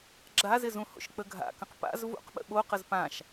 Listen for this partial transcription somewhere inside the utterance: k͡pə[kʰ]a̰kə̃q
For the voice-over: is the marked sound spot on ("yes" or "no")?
no